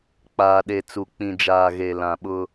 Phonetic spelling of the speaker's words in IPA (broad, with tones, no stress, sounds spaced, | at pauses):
k͡p aː˨ ɗ e˨ t͡s u˨ k͡p ĩ˨ d͡ʒ aː˨ ɣ e˨ l ã˨ ɓ ʊ˦